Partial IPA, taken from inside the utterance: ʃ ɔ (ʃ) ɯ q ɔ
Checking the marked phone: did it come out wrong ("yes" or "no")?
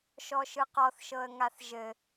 no